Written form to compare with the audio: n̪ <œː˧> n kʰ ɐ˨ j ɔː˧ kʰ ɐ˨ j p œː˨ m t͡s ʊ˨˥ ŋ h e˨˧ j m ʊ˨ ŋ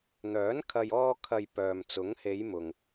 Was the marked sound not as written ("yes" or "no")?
yes